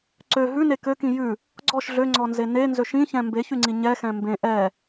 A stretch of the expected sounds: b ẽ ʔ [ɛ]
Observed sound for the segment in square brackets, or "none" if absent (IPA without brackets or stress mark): ɛ